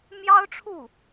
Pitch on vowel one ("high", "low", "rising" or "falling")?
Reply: high